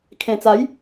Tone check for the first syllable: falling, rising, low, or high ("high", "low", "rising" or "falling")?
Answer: low